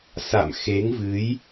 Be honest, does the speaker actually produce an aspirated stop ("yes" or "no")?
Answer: no